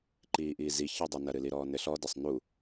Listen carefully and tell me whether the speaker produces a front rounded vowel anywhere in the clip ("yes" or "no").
no